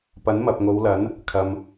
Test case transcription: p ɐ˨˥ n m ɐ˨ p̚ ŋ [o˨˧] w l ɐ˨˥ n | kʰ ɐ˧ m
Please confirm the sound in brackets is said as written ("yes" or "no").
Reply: yes